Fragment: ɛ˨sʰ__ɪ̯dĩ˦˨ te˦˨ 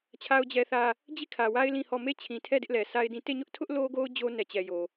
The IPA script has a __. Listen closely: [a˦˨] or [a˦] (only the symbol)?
a˦